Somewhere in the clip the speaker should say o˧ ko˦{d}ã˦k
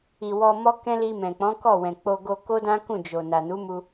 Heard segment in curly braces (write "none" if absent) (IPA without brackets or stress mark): d